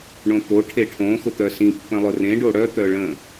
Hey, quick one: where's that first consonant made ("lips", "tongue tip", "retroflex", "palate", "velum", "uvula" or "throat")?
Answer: retroflex